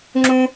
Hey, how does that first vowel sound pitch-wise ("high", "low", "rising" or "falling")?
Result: high